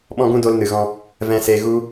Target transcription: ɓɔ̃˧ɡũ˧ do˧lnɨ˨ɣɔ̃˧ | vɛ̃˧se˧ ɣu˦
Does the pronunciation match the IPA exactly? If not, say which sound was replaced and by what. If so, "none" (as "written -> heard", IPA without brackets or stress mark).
none